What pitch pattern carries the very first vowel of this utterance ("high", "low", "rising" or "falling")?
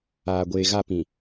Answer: low